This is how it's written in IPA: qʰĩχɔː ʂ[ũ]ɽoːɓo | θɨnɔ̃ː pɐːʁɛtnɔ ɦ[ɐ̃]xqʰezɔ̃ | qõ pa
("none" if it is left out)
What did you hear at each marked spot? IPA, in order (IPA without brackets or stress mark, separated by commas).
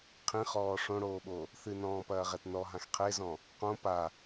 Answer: õ, ã